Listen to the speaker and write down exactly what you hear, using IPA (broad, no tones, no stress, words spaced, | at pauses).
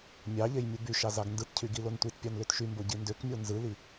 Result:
mʲɑʎej mʲubyʃɑ zɑɡndɯtcʰy ɡilontʷitpʲɑn løtʃymbo ɟindøkmʲo nzɯli